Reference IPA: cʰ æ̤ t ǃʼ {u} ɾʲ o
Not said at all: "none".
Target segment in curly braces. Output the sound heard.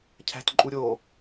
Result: u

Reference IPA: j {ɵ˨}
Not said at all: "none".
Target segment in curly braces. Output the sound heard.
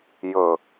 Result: ɵ˨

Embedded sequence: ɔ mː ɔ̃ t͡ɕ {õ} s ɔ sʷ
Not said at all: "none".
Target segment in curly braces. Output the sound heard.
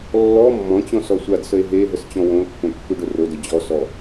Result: ɔ̃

